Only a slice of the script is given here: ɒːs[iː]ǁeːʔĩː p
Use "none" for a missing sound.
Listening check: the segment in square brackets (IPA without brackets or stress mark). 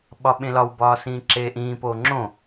ĩː